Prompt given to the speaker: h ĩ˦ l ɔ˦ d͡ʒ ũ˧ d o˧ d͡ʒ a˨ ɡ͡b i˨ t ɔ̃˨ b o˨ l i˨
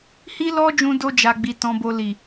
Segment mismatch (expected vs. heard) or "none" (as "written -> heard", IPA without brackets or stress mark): ĩ˦ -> i˦